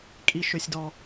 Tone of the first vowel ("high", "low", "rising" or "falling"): high